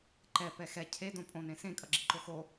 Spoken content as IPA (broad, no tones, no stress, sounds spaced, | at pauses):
ǃ ɛ p ɛ x ɛ cʰ e d õ pʼ õ n ẽ s ẽ kʼ ʌ ɡ͡ǁ i ǃ o x o